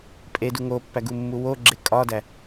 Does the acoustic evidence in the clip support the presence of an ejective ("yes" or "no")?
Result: yes